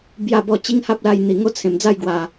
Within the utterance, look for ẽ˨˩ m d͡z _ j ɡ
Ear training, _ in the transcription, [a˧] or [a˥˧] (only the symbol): a˥˧